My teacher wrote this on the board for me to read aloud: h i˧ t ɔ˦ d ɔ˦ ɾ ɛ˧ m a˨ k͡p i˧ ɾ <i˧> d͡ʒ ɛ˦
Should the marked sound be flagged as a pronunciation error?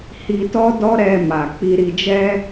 no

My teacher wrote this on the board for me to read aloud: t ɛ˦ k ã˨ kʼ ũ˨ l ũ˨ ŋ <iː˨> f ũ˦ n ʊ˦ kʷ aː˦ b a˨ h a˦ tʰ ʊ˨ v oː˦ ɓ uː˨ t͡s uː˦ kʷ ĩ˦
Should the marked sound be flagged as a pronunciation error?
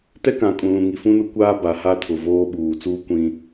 yes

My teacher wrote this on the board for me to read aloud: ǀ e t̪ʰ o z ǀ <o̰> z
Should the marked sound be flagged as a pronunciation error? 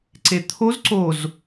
yes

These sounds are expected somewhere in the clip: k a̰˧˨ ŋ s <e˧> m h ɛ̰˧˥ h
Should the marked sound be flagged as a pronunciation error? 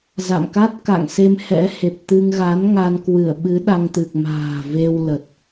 no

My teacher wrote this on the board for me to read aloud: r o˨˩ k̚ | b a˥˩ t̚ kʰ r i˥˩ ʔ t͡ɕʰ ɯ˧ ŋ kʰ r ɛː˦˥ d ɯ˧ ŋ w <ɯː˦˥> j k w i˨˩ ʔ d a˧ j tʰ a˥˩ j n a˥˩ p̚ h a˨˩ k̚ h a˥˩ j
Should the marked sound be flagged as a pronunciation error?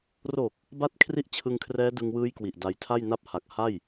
no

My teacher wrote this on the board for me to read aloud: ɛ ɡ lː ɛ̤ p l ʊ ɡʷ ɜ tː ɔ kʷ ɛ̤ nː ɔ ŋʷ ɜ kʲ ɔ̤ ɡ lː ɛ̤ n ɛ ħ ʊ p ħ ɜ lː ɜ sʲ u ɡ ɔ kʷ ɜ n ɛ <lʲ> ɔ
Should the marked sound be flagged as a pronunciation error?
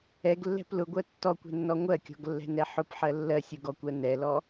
yes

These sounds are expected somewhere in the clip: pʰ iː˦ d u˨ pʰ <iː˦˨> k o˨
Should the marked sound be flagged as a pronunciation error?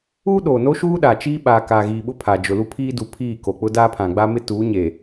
no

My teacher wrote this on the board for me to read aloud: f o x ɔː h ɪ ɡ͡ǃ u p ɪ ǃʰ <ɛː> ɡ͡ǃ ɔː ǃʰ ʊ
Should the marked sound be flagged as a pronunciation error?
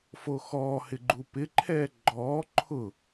no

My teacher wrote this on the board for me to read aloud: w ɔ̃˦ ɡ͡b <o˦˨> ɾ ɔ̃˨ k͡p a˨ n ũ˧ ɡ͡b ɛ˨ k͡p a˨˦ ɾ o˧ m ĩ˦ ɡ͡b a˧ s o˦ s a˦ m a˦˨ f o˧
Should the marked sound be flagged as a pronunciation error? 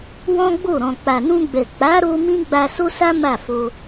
no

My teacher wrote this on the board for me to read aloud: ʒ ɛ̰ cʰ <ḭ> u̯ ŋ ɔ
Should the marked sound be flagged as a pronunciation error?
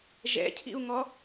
no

